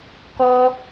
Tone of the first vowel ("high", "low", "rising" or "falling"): high